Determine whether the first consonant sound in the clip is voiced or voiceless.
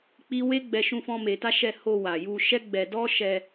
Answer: voiceless